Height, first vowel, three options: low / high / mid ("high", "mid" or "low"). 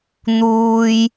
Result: high